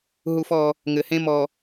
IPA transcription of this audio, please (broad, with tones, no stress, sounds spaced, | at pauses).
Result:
ɦ u˦ f ɔ˦ | ŋ ɘ˨ h ẽ˦ m ɔ˨